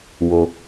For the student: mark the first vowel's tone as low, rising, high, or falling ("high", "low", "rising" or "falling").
low